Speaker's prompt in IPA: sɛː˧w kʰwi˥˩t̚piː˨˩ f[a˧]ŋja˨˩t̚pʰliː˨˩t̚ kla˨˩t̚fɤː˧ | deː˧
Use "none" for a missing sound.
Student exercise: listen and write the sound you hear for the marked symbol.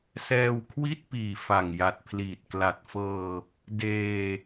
a˨˩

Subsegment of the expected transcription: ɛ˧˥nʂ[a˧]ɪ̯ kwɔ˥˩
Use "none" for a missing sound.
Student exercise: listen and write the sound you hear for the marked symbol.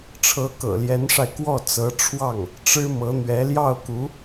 a˧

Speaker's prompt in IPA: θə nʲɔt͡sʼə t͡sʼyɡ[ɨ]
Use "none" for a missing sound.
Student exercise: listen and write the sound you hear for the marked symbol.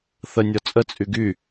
y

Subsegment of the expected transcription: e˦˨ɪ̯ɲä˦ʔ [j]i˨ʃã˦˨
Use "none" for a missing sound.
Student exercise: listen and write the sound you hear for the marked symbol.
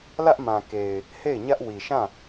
w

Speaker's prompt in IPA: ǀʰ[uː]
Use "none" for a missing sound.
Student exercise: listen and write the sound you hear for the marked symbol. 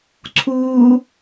uː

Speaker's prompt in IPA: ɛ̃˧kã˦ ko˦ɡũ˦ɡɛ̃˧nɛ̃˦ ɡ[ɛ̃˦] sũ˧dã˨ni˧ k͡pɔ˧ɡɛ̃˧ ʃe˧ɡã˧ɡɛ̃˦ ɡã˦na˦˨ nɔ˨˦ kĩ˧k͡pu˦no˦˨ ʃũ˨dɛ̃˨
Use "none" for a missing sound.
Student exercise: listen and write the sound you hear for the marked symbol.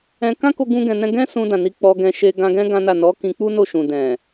ɛ̃˦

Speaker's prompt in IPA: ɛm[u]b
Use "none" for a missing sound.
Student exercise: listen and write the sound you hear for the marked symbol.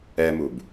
u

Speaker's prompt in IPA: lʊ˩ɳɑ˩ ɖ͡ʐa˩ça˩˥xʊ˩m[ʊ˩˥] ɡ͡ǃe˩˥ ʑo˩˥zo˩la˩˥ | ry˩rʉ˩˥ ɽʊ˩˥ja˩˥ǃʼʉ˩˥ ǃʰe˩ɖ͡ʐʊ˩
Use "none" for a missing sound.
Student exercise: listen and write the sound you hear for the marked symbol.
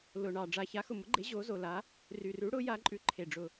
ʊ˩˥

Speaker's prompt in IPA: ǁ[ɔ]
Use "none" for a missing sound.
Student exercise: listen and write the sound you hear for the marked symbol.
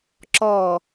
ɔ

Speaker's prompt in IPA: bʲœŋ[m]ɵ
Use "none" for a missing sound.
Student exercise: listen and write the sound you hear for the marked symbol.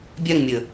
mʲ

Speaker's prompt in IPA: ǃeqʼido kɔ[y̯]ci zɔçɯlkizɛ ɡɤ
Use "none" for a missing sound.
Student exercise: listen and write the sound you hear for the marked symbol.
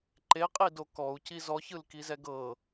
u̯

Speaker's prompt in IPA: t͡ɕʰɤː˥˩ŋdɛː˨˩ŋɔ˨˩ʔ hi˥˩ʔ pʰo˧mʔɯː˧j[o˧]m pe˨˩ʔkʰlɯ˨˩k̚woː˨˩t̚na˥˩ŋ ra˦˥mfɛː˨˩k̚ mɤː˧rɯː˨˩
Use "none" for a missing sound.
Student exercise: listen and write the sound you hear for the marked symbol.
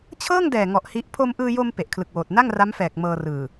o˧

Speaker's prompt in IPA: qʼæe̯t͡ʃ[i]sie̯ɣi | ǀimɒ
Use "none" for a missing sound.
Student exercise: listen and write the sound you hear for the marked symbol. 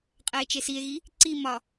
e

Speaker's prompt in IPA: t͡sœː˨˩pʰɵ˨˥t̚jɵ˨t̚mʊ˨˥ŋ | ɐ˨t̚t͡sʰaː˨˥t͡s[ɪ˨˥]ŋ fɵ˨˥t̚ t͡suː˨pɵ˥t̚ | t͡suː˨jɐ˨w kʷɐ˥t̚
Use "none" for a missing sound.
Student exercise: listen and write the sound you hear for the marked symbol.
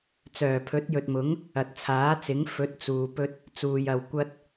ɪ˨˥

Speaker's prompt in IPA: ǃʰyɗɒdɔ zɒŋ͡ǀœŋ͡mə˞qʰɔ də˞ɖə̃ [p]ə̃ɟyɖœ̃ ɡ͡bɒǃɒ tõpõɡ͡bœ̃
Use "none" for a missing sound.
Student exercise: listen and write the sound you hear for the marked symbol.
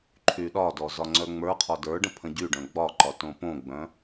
pʰ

